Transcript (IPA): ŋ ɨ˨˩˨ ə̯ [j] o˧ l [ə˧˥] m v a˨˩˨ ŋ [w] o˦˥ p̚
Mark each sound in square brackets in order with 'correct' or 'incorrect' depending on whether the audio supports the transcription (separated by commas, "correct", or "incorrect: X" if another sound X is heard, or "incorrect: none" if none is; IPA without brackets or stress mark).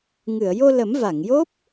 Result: correct, incorrect: ə˨˩˦, incorrect: j